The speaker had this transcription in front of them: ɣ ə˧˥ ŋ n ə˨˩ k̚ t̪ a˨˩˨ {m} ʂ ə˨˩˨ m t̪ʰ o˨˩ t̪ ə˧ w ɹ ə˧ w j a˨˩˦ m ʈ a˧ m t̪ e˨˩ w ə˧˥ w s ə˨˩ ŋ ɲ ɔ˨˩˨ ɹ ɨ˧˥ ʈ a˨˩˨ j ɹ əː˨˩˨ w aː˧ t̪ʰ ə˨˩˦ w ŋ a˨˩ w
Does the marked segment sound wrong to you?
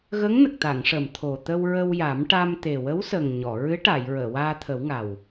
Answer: yes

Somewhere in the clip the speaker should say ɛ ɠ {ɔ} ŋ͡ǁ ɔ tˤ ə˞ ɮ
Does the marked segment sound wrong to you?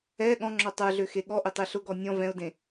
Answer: yes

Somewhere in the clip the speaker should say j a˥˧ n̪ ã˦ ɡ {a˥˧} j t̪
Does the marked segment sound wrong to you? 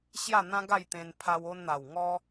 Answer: no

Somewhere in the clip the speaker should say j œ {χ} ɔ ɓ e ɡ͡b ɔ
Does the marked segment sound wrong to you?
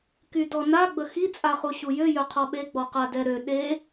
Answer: yes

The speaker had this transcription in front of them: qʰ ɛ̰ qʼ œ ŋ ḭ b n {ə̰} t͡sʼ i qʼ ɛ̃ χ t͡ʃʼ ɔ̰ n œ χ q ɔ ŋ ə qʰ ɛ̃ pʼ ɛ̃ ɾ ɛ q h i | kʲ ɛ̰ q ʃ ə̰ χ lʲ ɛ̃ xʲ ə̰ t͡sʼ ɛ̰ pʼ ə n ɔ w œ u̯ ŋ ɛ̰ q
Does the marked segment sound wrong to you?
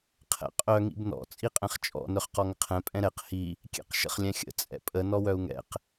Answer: yes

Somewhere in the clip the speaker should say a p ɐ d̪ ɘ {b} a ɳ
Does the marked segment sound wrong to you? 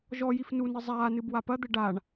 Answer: yes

